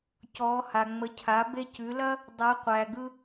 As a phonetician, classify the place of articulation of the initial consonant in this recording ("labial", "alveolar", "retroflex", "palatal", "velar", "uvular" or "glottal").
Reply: palatal